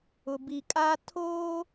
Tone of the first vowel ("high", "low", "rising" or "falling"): low